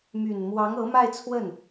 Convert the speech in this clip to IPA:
m y˨˩ n m w ɑ˧˥ ŋ ɤ˧˥ m a˥˧ ɪ̯ t͡sʰ w ə˥˩ n

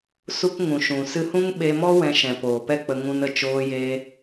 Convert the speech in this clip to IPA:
s u˦ k ŋ ũ˨ ʃ ũ˨ s ɨ˧ h ũ˦ ŋ ɓ e˧ m ɔ˦ w ɛ̃˧ ʃ ɛ̃˨ p oː˨ p ɛ˦ k͡p ə˧ ŋ ũ˧ n ə˨ t͡ʃ oː˧ j eː˧

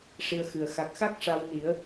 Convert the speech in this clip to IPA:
ʂ i˧ ə̯ x ɨ˨˩ ə̯ x a˨˩ k̚ x a˦˥ k̚ ʂ a˧ w n i˨˩˦ ə̯

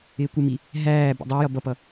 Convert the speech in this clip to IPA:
ɪː kʷ ə m i | ɦ æː b ṵ dˤ ə˞ j ʌ b ʌ p ʌ

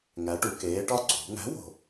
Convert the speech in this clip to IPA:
ŋ æ˨˥ ʈ u˩˧ k eː˨˥ ʈ ɒ˥ ǀʰ ṳ˩˧ ŋ æ̤˨˥ w o̤˨˩

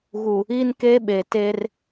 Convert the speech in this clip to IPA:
ɣ u˨ | i˦ n k e˦ ɓ e˨ t e˦ r

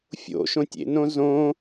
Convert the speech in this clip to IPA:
fʲ o̰ ʃ õ tʲ ḛ n õ z õ

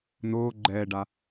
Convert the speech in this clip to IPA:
n oː ɡ͡ǃ ɛː ɖ a

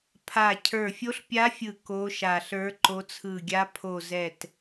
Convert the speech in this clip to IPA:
pʰ a˨˩ cʰ ə˞˨˩ fʲ o˨˦ ɬ pʲ a˨˦ fʲ ɯ˨˩ k o˨˦ ʃ a˨˩ ɬ ə˞˨˦ ǃ o˨˦ t͡sʰ ɯ˨˩ ɡʲ a˨˦ pʰ o˨˩ z ɛ˨˩ t

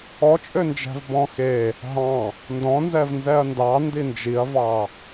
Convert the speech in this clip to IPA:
ɔ t͡ʃʼ ø n d͡ʒ æ̤ v b ɔ̃ x e | ɦ ɑ̃ | n d ɔ̃ n z ɛ v n z ɛ ɐ̯ n d ɑ n d i n d͡ʒ i ɐ̯ v ɑ

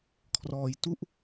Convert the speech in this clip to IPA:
kʰ r ɔː˧ j t u˥˩ ʔ

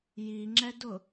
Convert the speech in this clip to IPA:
j i ŋ͡ǁ ɛ d ʊ

